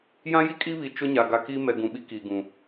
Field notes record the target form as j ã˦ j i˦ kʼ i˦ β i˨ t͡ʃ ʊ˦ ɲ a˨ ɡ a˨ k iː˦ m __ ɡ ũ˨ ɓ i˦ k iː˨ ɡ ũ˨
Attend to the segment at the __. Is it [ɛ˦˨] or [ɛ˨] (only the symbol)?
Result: ɛ˨